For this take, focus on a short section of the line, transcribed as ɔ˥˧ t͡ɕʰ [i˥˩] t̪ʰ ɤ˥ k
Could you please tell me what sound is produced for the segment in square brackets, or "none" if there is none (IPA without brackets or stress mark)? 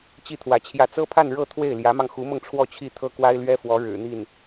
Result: i˥˩